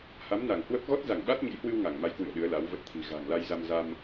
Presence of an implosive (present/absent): present